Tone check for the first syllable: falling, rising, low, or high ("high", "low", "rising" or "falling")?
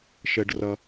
low